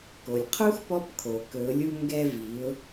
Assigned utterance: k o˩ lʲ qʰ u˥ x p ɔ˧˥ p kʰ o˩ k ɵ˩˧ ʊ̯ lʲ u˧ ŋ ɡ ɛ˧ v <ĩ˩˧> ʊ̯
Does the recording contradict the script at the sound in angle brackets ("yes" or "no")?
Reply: yes